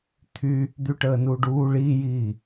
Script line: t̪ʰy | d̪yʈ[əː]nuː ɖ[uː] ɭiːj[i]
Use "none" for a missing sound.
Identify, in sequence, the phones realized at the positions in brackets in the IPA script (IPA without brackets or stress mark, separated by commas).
əː, uː, iː